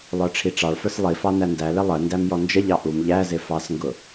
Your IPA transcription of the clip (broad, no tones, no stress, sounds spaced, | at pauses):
lˠ ə˞ ʈ͡ʂʰ i ʈ͡ʂ ɑ ɭ f ə˞ s lˠ i f ɑ n æ n d æ l ɪ lˠ ə n d æ m j ɔ n d͡ʒ ə ʎ ɑ ʔ u m ʎ æ z ɪ f ɑ s ŋ ɡ ʊ